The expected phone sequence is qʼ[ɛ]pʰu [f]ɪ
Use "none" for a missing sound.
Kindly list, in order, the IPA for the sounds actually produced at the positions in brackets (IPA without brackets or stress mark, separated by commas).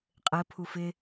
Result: ɘ, f